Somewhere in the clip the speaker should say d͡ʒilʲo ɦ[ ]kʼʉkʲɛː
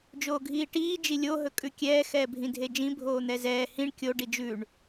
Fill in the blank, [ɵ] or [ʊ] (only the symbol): ɵ